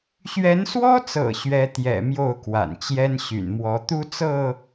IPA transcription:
ɕɥɛ˨˦nswɔ˦t͡sɤ̰˨˩ ɕɥɛ˨˦t̪jɛ̰˨˩ mjo˥˨ʊ̯kwa̰˨˩nt͡ɕjɛ˦n ɕy̰˨˩nmwɔ˨˦ t̪u˦t͡sɤ˥˨

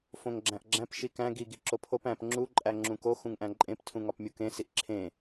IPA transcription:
fõŋɡ͡ǁæ̃ʔɡ͡ǁæ̃p ʃikæ̃ ɡi ɡiǁopʰop æ̃p ŋ͡ǁu ǃʼæŋ͡ǁũko xũŋʔæ̃ǃʼẽp tʰũŋɒpmʲukẽ siʔǁʰẽ

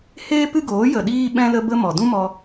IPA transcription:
heː˦ pɨ˦ɡoː˨˦ jə˨ɗiː˧ɓɛ̃˧ lə˦bə˦ mɔ˨ dũ˦mɔ˧

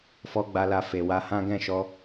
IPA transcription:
fɔ˧ɡ͡ba˧la˧ fe˨wa˧hã˦ ɡɛ̃˦˨ʃɔ˧

